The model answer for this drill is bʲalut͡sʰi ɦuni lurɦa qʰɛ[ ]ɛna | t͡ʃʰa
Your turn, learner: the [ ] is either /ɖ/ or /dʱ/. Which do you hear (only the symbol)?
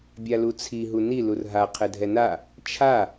dʱ